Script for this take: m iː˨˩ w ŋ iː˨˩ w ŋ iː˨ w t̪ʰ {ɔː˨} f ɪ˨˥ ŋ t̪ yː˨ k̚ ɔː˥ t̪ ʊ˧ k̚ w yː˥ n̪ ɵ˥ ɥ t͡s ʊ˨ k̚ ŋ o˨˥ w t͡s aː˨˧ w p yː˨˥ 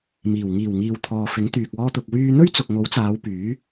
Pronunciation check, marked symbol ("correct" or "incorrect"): correct